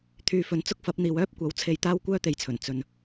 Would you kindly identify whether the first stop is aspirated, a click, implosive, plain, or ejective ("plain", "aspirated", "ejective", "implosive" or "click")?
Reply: aspirated